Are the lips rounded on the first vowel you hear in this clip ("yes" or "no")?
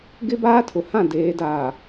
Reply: no